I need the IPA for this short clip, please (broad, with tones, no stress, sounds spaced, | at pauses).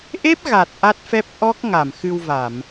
ʔ e˦˥ p̚ ɣ a˨˩ t̚ ʔ a˦˥ t̚ f ɛ˦˥ p̚ ʔ ɔ˦˥ k̚ ŋ a˧˩ m x ɨ˧ w v a˧˩˨ m